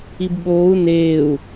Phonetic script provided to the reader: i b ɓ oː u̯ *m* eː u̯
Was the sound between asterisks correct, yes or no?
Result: no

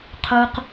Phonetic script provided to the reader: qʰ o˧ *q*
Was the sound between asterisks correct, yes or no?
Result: yes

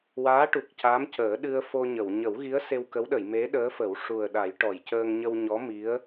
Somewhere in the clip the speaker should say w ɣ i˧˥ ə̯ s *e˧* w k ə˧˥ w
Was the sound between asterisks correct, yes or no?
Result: yes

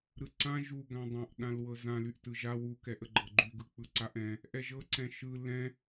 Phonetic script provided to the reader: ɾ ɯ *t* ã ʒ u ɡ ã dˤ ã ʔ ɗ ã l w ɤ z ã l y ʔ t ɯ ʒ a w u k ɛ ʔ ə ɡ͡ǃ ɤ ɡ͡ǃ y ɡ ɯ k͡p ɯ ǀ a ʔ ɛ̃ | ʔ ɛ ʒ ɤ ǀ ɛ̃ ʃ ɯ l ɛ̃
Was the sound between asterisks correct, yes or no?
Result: no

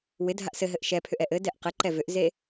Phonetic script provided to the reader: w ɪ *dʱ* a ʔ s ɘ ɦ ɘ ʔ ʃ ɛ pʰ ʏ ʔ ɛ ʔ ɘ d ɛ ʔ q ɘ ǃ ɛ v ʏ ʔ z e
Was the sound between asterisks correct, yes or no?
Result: yes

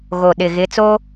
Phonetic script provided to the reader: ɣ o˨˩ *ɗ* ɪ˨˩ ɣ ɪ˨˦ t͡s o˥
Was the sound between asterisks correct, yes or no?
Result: yes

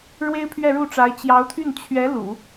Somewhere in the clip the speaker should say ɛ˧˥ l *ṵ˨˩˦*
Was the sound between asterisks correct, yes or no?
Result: yes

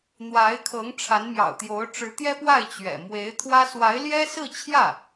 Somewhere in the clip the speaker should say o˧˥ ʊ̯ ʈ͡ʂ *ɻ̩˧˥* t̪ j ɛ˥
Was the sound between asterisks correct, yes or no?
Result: yes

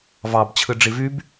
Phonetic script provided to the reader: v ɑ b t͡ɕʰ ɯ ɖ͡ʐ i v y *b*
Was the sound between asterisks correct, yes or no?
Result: yes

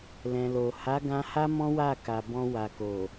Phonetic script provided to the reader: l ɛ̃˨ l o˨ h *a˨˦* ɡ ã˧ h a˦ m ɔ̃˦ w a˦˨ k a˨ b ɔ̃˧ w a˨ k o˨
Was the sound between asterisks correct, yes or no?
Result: yes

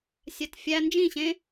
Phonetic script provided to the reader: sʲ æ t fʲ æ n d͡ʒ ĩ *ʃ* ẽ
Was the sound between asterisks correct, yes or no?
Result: no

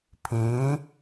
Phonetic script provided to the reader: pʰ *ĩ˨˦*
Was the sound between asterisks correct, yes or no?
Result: yes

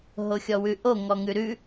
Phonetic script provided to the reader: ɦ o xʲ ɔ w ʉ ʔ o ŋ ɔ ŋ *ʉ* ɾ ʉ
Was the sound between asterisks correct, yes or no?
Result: yes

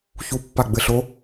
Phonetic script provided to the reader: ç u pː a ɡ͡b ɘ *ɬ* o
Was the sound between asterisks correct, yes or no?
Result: yes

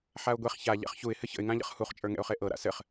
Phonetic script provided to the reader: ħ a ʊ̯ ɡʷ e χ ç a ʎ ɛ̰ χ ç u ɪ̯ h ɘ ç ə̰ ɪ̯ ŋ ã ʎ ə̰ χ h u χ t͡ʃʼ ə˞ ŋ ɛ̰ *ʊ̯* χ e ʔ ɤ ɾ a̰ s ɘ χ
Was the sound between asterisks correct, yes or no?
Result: yes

